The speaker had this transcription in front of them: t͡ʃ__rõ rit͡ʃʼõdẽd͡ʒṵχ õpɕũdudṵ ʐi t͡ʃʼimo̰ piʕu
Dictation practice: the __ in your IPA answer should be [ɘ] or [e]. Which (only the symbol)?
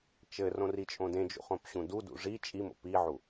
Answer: ɘ